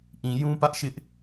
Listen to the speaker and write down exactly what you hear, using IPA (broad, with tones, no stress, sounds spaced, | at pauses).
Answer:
ʔ ĩ˨ j ũ˦ p ä˦ ʔ ʃ ɪ˦ ʔ